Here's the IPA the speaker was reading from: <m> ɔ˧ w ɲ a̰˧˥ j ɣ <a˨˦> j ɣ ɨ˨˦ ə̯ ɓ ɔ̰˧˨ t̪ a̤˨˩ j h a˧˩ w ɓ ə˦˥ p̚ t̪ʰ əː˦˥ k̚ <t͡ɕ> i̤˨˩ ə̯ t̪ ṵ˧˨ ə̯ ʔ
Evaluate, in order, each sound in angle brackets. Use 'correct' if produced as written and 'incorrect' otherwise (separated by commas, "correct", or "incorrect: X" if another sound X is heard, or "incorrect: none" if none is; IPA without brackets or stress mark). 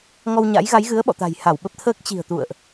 incorrect: ŋ, correct, correct